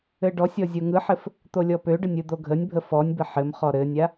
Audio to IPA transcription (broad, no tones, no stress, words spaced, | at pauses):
ɘɖɔsʲɔ zʲoŋɯħɘf | t̪olʲɔpøɖənʲ ɯd̪oɡʱənʲbʱə fɔnʲbə ħɘm χɔɾɘnʲa